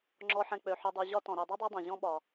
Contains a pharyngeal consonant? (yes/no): yes